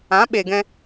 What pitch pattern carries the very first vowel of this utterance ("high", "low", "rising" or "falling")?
rising